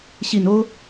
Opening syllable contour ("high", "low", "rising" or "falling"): low